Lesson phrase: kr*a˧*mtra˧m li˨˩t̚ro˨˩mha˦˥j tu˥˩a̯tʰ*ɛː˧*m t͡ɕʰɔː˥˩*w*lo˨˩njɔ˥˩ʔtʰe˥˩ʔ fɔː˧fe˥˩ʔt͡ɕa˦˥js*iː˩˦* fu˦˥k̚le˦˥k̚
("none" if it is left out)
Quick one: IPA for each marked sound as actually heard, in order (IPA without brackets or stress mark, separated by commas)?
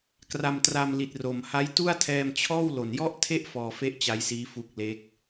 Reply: a˧, ɛː˧, w, iː˦˥